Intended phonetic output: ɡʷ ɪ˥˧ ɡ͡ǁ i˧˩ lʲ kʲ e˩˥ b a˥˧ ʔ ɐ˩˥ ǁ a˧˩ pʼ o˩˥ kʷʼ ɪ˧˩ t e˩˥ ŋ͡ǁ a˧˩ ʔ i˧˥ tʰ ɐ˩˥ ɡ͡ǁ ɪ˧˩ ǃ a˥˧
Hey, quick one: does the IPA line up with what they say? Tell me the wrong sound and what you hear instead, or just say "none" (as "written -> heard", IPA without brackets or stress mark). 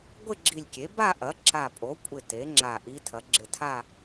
ǃ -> tʰ